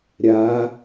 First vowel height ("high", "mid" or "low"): low